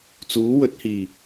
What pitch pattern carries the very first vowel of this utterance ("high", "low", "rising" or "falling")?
rising